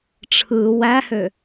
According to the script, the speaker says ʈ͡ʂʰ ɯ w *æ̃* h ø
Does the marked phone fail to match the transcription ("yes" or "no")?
yes